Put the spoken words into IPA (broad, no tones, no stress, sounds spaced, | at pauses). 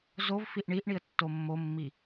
z o v f i ʔ ɳ i ʔ ɳ i ə̯ tː o mː o mː i